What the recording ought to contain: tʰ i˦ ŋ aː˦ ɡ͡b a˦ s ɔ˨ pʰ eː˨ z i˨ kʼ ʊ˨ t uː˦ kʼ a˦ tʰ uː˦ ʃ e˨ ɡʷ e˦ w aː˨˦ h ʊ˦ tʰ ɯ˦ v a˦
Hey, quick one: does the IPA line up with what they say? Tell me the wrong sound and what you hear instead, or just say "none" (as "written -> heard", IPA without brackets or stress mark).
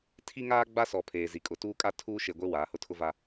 ɯ˦ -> ʊ˦